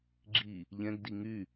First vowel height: high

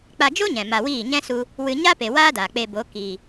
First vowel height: low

